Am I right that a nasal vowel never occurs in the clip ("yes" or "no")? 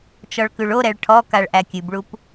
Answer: yes